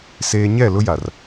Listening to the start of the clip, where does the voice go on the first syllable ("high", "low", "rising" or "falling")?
high